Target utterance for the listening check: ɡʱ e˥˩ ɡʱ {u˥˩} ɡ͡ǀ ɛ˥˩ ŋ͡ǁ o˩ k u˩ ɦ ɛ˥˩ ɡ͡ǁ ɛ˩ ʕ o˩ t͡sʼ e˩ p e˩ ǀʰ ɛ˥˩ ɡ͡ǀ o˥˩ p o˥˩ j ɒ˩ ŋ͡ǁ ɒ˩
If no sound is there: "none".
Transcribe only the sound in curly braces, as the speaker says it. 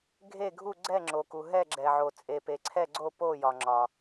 u˥˩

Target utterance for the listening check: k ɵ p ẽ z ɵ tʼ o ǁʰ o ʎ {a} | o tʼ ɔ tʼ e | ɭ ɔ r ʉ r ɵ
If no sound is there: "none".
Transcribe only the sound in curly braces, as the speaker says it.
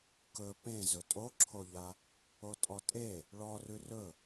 a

